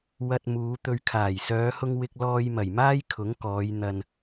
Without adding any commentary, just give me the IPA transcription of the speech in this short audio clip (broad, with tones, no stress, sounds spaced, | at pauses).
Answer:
w ɐ˧ t̚ m uː˨˧ t̪ ɵ˧ ɥ kʰ aː˨˩ j s œː˨˧ h ʊ˧ ŋ w ɪ˧ k̚ l ɔː˧ j m ɐ˨˩ j m aː˥ j kʰ ʊ˨˥ ŋ k ɔː˨˧ j n̪ ɐ˨ n